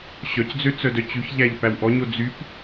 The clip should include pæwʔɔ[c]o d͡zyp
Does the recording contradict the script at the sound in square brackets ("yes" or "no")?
yes